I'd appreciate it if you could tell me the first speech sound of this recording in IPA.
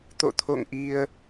t̪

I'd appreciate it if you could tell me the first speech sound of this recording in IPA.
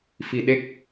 f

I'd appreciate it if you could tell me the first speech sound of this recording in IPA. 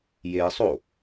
j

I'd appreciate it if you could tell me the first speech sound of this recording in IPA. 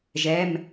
ʒ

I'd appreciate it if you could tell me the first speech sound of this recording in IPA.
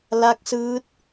l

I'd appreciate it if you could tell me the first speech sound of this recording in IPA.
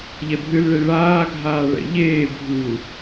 ʎ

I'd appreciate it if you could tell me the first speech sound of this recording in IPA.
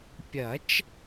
pʲ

